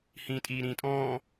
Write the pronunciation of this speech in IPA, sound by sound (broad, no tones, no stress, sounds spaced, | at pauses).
h ĩː tʼ iː ɾ ĩː tʼ ɔ̃ː